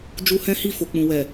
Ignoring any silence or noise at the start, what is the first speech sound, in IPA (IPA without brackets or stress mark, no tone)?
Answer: d͡ʒ